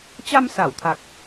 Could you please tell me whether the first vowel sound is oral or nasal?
oral